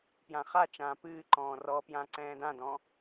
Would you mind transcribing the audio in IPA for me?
p j ã χ a t͡ʃ ãː p ɨː ǃ ɔ̃ː r ɔ p j ã ǀ ɛ̃ː d ã d ɔ̃

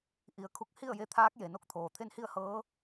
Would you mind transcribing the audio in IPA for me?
ʔ i˩˧ ə̯ kʰ u˧ k̚ h i˥˨ ə̯ j e˧ t̪ʰ aː˧˥ k̚ j e˩ n o˥˨ k̚ t̪ʰ oː˩ t̪ʰ e˥˨ n h i˥˨ ə̯ h ɤː˧˥

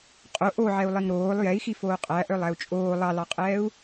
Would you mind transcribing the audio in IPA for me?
qʼ o ʔ o ʕ ɛ u̯ lˠ i ŋ ɾ oː lˠ j ɛ i̯ x i f oː qʼ æ ʔ œ lˠ æ u̯ t͡ʃʼ oː lˠ ɑ l ɑ qʼ ɛː u̯

